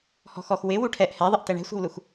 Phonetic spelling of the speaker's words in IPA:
h ɔ̤ x ɔ x w ɪ w u ʈʰ ɛ ʔ h ɛ ðˤ ɪ ʔ t ɛ ɳ ɛ̤ sʷ ɛ̤ w l u x

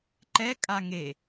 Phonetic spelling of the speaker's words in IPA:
ǃ ɛ kʼ a ŋ e

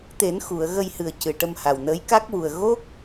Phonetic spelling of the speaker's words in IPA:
t̪ e˨˩˦ n x u˨˩˨ ə̯ ɣ ə˧ j h ɨ˨˩ ə̯ c ɨ˨˩ ʈ ə˧ m h a˨˩ w n əː˧˥ j k a˦˥ k̚ w u˨˩ ə̯ ɣ o˦˥ k̚

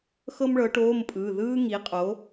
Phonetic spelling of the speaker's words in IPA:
x ɤ˥ m ɭ ɤ˨˥ ʈ oː˧˥˧ m pʼ ɯː˩˧˩ ð ɯː˥ ŋ i˨˥ qʼ o˨˥

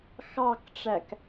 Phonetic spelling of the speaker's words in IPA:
x ɑ k ʈ͡ʂ æ k

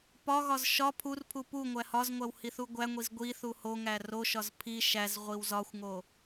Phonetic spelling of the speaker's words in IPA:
p ɒ ɣ ɒ z ʃ ɒ pʰ u r pʰ u p u ŋʷ æ h ɒ z ŋʷ æ w h i θ u ɡʷ æ ŋʷ i z ɡʷ i θ u h o ŋ æ r o ʃ ɒ z pʰ i ʃ æ z ʁʷ i w z ɒ xʷ ŋ o

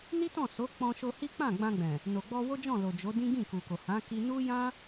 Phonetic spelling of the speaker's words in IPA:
n i˦ t ɔ̃˦˨ s o˨˦ k͡p ɔ̃˧ ʃ o˧ h i˦ k͡p ã˦˨ ɡ͡b ã˧ ɡ͡b ɛ̃˨ | n o˨ ɡ͡b ɔ˧ w o˦ d͡ʒ ɔ̃˦˨ l o˨ d͡ʒ o˨˦ d ĩ˦ ɡ ĩ˦˨ k u˨ k o˨ h ã˨˦ k i˧ n u˦ j ã˦

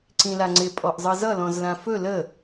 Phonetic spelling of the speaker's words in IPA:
ǀ ĩ l a ŋ͡ǀ ɪ pʼ ɔ ʔ zˤ ɤ z ʌ l ɔ̃ z l ã f ɵ l ə

